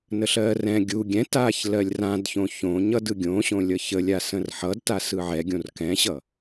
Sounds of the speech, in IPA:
nəɬɜːrɛ̃ ɡʲu ɡʲɛ̃taːç lɜlʲrãdçõ çõ ɲʌdɯɡʲõɕõ lʲʌçəlʲasə̃r ħʌdta sɯʕɛɡʲõr kɛ̃ɕʌ

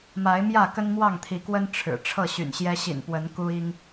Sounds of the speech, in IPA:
ma˨˦ɪ̯mjä˥˨ kə˦nmwɑ˥˨ŋt̪ʰi˨˦kwə˦n ʈ͡ʂʰɻ̩˨˩ ʈ͡ʂʰɤ˥˨ɕy̰˨˩nɕjɛ˦ ɕḭ˨˩npwə˨˦n ku˦i˦ŋ

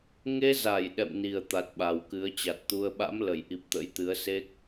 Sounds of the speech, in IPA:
ŋe˧za˧˩j ɗɛ̰˧˨mni˨˩ə̯ t̪a˨˩t̚ɓa˨˩wkɨ˨˦ə̯ t͡ɕa˨˩t̚t̪u˧ə̯ ɓa̰˧˥mlə˧˩jʔi˨˩p̚ t̪ə̰˧˥jt̪ɨ˨˦ə̯se˦˥k̚

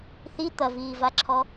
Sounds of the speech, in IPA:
θi t̪ɐviːvaǁʰɔ

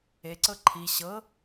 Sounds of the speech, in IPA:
eǀɤ ǃʰi ɕɤ

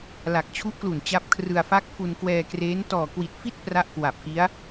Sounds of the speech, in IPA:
la˨˩k̚t͡ɕʰu˦˥ʔklu˨˩n t͡ɕa˦˥p̚kʰrɯ˧a̯ fa˦˥k̚fu˧nkwɛː˧kreː˦˥n tɔː˨˩kwi˨˩t̚fi˥˩t̚ pra˥˩ʔkwa˨˩p̚ki˦˥a̯

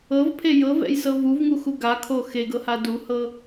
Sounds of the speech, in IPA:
ɤvpʰe jɤvɛ̰jsɤ vuvŋuxu ɡakʰo xeɡɤha duhɤ

